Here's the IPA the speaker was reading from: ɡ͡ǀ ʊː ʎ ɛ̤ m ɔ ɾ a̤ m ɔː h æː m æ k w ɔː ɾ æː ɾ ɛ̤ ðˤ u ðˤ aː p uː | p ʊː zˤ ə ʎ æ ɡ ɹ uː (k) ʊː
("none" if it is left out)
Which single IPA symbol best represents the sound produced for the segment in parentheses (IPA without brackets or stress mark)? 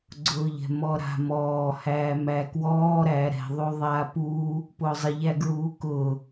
k